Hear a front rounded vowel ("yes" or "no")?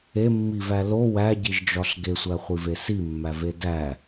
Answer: no